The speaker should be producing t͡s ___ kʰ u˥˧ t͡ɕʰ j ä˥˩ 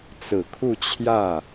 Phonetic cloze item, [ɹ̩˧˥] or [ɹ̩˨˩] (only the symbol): ɹ̩˨˩